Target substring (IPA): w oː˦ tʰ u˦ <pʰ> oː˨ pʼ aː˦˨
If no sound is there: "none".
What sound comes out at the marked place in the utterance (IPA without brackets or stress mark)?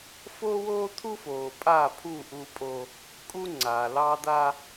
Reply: f